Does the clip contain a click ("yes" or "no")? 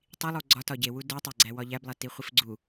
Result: yes